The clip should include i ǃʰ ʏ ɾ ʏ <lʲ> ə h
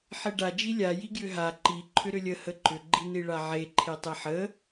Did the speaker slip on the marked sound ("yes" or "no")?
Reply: no